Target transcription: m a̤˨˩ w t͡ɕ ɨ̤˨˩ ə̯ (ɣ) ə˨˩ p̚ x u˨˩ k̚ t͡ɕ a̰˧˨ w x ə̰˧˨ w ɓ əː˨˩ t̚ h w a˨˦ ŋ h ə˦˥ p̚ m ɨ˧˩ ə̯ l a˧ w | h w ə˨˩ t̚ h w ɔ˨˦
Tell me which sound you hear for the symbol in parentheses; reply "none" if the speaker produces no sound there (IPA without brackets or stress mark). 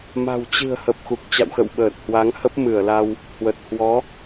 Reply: h